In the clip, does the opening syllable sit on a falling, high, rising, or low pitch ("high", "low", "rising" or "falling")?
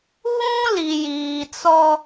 high